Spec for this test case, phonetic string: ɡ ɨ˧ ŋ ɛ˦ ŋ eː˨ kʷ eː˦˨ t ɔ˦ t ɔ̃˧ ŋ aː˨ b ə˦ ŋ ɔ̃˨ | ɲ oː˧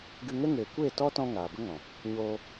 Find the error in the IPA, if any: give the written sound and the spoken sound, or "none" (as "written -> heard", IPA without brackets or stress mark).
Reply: none